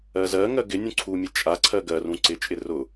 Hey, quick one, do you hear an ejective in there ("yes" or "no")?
yes